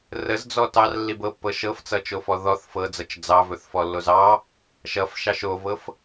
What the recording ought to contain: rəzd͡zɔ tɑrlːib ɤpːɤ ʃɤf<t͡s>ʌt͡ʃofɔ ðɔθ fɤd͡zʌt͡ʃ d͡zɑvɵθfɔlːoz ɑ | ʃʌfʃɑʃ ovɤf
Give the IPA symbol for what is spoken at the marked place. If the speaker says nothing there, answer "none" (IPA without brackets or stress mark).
t͡s